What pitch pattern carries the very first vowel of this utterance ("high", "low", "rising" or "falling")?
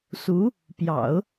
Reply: rising